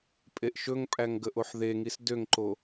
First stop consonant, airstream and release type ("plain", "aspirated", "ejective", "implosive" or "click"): ejective